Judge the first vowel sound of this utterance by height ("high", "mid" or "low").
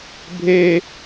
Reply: mid